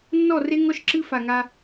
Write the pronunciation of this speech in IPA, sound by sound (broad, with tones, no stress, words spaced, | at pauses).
nːɔ˦˨re˦ ŋɔ˦ʃǁɨ˦ fa˨ŋa˦